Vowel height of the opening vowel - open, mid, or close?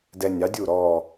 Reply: mid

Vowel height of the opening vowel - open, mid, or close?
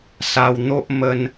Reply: open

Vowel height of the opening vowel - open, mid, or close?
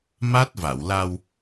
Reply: open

